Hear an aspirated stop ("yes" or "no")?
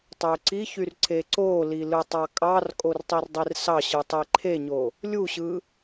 yes